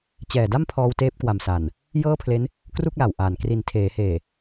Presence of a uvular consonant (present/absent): absent